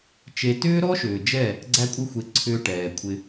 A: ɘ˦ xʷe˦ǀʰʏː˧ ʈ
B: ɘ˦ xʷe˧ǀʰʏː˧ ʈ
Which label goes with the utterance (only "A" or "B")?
B